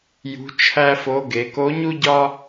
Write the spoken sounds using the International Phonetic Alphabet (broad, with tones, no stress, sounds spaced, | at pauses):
j ṳ˧˥ t͡ʃʰ æ˥ f o˧˥ ɡ e˩˧ k o˧˥ ɲ u˥ ɟ ɒ˥